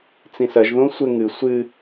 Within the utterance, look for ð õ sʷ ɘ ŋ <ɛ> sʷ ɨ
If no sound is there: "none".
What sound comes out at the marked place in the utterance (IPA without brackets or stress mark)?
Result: ɨ